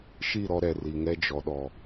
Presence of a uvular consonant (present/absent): absent